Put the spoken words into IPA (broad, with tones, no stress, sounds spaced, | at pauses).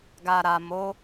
ɡ a˨ ɾ a˨ m o˨˦